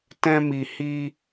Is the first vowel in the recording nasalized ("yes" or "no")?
yes